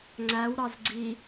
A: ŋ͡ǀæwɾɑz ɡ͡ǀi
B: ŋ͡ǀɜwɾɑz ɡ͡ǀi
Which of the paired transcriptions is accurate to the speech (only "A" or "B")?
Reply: A